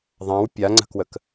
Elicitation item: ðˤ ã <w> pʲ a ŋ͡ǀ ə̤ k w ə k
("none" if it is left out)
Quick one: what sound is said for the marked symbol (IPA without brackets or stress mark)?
w